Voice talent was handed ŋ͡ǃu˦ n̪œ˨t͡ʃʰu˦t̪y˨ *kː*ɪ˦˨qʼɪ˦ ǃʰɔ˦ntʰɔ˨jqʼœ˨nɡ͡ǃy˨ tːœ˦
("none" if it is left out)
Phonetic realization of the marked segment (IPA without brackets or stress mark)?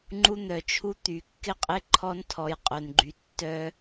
kː